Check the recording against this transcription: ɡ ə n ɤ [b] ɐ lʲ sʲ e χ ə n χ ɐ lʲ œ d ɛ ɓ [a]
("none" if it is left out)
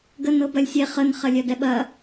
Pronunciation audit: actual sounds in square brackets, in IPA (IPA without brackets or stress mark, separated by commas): b, ɐ